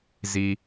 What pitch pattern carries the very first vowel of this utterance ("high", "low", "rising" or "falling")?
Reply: low